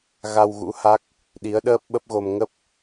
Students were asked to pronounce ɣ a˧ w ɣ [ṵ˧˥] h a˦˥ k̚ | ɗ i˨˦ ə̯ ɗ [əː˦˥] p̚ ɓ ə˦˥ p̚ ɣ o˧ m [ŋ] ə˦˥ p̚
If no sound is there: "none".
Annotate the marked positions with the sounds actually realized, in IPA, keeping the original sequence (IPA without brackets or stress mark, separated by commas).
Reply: ṵ˧˥, əː˦˥, ŋ